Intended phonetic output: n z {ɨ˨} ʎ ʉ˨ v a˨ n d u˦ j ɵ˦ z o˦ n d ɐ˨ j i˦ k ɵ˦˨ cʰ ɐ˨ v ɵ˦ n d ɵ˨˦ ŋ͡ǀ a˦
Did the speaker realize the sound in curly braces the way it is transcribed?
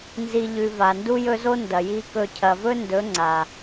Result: no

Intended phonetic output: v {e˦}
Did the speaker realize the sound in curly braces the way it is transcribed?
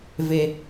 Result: yes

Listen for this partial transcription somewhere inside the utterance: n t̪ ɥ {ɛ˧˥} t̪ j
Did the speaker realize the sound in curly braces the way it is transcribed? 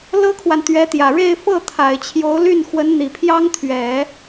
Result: yes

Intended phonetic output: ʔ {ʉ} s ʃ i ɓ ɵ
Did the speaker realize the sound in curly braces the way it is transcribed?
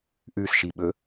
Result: yes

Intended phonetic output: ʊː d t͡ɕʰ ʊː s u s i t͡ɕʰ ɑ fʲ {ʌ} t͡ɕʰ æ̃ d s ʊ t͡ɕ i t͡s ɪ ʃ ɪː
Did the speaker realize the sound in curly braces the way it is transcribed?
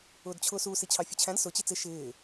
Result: yes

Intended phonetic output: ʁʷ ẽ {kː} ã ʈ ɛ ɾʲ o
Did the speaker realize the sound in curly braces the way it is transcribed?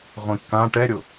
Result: yes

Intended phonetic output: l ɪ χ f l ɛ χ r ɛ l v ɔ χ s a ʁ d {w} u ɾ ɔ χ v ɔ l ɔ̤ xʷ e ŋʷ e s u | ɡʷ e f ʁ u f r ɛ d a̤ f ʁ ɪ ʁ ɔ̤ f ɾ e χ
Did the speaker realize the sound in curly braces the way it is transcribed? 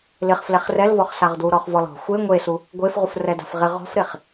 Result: yes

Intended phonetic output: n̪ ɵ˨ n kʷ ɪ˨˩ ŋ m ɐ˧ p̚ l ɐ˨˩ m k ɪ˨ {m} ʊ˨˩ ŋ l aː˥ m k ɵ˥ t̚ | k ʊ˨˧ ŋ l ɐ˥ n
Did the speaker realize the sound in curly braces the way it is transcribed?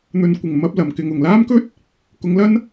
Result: no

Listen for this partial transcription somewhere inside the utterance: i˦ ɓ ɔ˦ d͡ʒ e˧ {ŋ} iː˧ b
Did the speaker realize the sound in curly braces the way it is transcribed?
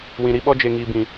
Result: yes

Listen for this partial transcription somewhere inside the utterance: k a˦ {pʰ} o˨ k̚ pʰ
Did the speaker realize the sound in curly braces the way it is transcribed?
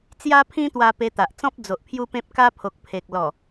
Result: yes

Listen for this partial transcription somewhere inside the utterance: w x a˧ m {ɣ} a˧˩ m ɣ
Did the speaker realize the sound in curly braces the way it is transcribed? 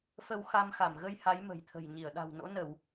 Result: no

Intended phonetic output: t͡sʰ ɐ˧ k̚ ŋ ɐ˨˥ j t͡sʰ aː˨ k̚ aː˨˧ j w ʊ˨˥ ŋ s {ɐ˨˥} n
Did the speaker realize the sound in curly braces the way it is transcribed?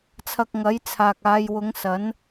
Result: yes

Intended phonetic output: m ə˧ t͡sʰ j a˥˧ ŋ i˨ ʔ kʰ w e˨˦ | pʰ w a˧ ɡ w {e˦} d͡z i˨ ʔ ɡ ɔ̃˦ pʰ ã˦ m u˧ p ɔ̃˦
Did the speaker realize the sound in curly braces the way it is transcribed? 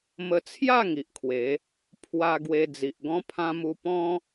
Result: no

